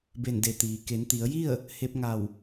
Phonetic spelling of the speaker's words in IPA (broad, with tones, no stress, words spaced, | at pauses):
be˧˩nde˩˧t̪iː˩ ke˩˧nt̪i˩˧ə̯ji˥˨ə̯ | he˧p̚ŋa˧˩w